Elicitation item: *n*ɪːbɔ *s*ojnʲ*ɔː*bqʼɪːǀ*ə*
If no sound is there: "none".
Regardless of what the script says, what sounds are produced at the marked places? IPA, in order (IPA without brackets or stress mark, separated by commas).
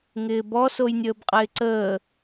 ŋ, s, əː, əː